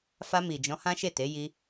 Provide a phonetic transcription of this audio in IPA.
f a˧ m i˨ d͡ʒ ɔ̃˨˦ h ã˦ ʃ e˦˨ t e˨˦ j i˧

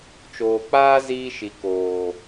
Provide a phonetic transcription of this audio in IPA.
t͡ʃ oː˨ k͡p aː˦ z iː˧ ʃ i˨ k oː˨

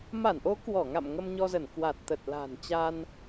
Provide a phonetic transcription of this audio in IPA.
m a˧˩ n ʔ o˨˦ k w ɔ˧˩ ŋ a̰˧˨ m ŋ ə˧ m ɲ ɔ˧ z ə˧˩ n k w a˨˩ t̚ t̪ ə˨˩ t̚ l a̤˨˩ n t͡ɕ a˧ n

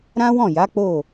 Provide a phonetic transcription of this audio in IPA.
ɾ ã˦ w ɔ̃˦˨ j a˨˦ k͡p o˦˨

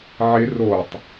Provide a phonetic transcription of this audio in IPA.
ʕ ɪ r o tˤ

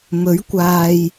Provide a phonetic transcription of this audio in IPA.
m ɵ˨˥ ɥ kʷ aː˨ j

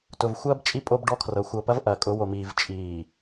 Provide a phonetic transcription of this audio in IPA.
t ʊ˨ v xʷ ɐː˦ b t͡ʃʼ i˦ pʼ o˦ b ɖ ɔ˦ kʰ r ɤ˨ xʷ ɤ˨ p ɐ˦ v ʔ ɐː˨ kʼ ʊ˨˦ w o˨ m iː˨ v t͡ʃʼ iː˨

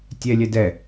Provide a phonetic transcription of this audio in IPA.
tʲ ɛ lʲ ɛ d ɛ

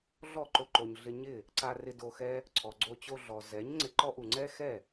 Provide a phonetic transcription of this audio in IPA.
ɮ ɔ˦˨ ǃ o˧ ǃ o˨ ɲ ɮ ɪ˧ ɲ ɪ˦˨ | ǀ a˧ r ɪ˧ d o˧ x ɛ˦ | ǀʰ ɔ˨ ɡ͡ǀ o˧ t͡ɕ o˧ ɮ ɔ˨ z ɛ˨˦ ɲ ŋ͡ǀ ɪ˧ ǃ ɔ˦ ʔ u˨ ŋ͡ǀ ɛ˦ x ɛ˦˨

